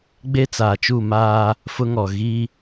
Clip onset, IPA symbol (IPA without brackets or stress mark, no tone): ɡ͡b